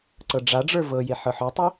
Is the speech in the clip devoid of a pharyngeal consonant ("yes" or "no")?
no